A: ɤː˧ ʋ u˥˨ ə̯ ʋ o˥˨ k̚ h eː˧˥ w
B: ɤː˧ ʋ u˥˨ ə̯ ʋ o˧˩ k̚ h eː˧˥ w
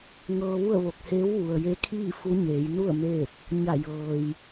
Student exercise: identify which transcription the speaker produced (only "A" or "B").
B